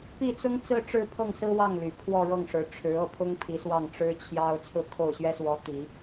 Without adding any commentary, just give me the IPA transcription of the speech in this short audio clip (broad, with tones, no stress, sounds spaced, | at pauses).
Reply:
p i˥˩ t͡s ʊ˥ ŋ t͡s ɹ̩˥˧ ʈ͡ʂ ɻ̩˥˧ pʰ ɤ˥˩ ŋ s ɹ̩˥ w ɑ˥˩ ŋ l y˨˩ pʰ w ɔ˥˧ ɻ ɤ˥˩ ŋ ʂ ɻ̩˧˥ ʈ͡ʂʰ ɻ̩˧˥ ɤ˥˩ pʰ ʊ˥ ŋ pʰ i˧˥ s w ɑ˥˩ ŋ ʈ͡ʂ ɻ̩˥ t͡ɕʰ j ɑ˥ ʊ̯ t͡sʰ ɹ̩˥˧ kʰ o˥˩ ʊ̯ ɕ ɥ ɛ˥ s w ɔ˧˥ t̪ i˨˩˦